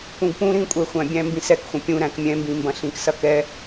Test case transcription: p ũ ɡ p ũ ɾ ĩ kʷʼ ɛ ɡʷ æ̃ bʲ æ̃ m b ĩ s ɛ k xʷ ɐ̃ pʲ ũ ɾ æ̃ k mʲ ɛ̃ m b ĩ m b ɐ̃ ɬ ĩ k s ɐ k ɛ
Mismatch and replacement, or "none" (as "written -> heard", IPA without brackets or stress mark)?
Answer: ɡʷ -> xʷ